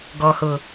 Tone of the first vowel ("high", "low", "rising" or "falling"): low